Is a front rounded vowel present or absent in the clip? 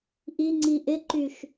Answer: present